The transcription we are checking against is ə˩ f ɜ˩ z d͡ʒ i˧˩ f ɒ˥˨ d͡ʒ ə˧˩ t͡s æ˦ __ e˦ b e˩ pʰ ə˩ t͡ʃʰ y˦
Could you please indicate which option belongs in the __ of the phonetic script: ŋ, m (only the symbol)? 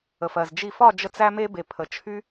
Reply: m